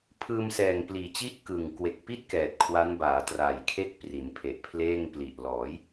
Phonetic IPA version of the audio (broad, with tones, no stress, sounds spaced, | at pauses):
pʰ ɯː˧ m s ɛː˨˩ ŋ p l iː˨˩ t͡ɕ i˥˩ ʔ k ɯ˨˩ ŋ k w e˨˩ k̚ p i˥˩ t̚ k ɛː˨˩ t̚ kʰ w a˦˥ n b aː˩˦ t r aː˨˩ j kʰ e˥˩ k̚ p r i˩˦ n pʰ e˨˩ ʔ pʰ l eː˥˩ ŋ p l i˨˩ ʔ l ɔː˩˦ j